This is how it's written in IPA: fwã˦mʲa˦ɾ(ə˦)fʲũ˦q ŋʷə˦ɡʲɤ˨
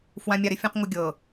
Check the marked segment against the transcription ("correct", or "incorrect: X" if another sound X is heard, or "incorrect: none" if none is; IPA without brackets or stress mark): incorrect: ɪ˦